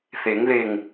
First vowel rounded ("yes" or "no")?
no